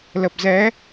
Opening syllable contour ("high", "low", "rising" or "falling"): low